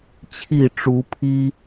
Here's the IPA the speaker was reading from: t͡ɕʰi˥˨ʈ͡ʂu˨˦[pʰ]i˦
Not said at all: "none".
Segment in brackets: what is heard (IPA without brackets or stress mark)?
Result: pʰ